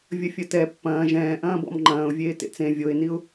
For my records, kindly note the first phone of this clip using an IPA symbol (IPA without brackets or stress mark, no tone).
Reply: vʲ